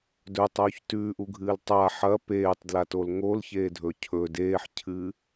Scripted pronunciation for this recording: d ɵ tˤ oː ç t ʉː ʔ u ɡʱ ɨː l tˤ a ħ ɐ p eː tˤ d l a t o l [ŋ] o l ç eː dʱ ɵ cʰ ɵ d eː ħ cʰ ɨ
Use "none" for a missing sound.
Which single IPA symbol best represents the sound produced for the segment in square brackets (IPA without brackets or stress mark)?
ŋ